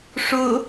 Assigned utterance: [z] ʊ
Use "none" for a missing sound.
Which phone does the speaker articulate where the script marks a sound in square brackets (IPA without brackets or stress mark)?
ʂ